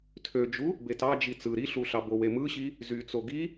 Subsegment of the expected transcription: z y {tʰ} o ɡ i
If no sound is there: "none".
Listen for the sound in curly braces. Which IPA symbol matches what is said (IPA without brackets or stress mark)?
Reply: t͡s